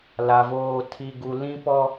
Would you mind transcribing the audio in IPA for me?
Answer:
l a˨ v oː˦˨ tʰ i˦ ɡ u˦ l ĩ˦ p ɔ˦

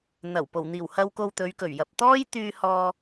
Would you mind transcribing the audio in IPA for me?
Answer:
n̪ ɐ˨˩ w p o˨˩ w n̪ iː˨˩ w h ɐ˨ w k o˨ w t̪ ɵ˨˧ ɥ k ɵ˨˩ ɥ j ɐ˨ p̚ t̪ ɔː˥ j t̪ yː˧ h ɔː˧

